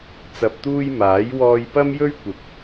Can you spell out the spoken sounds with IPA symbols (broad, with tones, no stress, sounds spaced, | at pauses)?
t͡s ɐ˨ p̚ t̪ uː˧ j m aː˨˥ j w ɔː˧ j p ɐ˥ m j ɵ˥ ɥ kʷ ɪ˨ k̚